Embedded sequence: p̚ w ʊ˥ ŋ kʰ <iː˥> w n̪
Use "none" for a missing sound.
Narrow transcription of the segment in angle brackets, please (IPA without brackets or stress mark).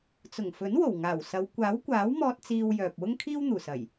iː˥